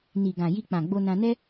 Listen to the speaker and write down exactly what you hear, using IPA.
n i˨ ɡ ã˨ j i˧ k͡p ã˨ ɡ͡b o˧ n ã˧ n ɛ˦

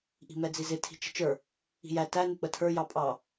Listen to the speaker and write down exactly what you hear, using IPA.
ʔ i̤ m ɛ d͡z i z ɪ tʰ i̤ t͡ʃ ə̤ t͡ʃ ə˞ | i̤ j æ t æ n ɪ k͡p ə tʰ ə˞ j ɑ pʼ ɑ

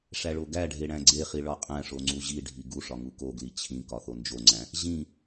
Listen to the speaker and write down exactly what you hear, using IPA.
ʂ æ ɭ o ɡ æ ɖʱ e ɽ æ̃ ɡ͡ǀ e χ i ɭ ɒ qʼ æ̃ ʂ o ŋ͡ǀ u ʑ i ɖʱ i ɡ u ʂ ɒ ŋ u k o ɡ l i t͡ɕʰ ĩ k ɒ θ o n d͡ʒ o ŋ͡ǀ æ̃ | ʑ ĩ

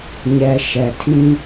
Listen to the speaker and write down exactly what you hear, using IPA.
ɲ ɛ˨ ʃ ɛ˨ tʰ ĩ˦

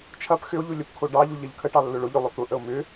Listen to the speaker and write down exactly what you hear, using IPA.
t͡ʃʰ ɐ p x ʏ o̯ ʎ u lʲ ə p kʰ o ɖ ɑ ʎ u ʎ ɐ ʎ kʰ ə ʈ ɑ lː ʊ ɭ ʊ ʎ ʏ lˠ ʊ t̪ ʊ ʔ ə o̯ m ʏ

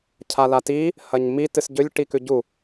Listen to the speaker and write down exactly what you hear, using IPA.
cʰ a l a t i | h ɐ ɲ m i t ɨ s ɟ ɵ lʲ ʈ i k ʉ ɟ u

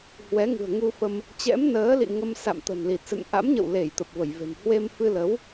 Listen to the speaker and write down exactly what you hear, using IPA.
h w ɛ˨˦ ŋ ɨ̤˨˩ ə̯ ŋ u˧ f ə˧ m | t͡ɕ ɛ̰˧˥ m n əː˨˦ l ḭ˧˨ ŋ ə˧ m s a̰˧˨ m t̪ ə̤˨˩ n l i˨˩ t̚ s ɨ̰˧˨ n ʔ a̰˧˥ m ɲ ə̰˧˨ w l e˧˩ j t̪ ə˨˩ p̚ v ə˧˩ j v e̤˨˩ m h w e˧ m f ɨ˧ l ə˨˦ w

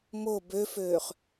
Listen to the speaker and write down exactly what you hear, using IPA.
m o b ø f øː χ

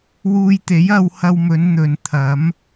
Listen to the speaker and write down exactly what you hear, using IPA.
w uː˧ j t̪ e˨˥ j ɐ˨˧ w h ɐ˧ w m ɵ˨˧ n n̪ ɵ˨ n t̪ʰ ɐ˨˥ m

